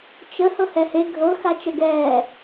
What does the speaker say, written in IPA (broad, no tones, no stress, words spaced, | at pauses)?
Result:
t͡ʃə hɤhɛhe ɡʱɤ xat͡ʃəɡɛː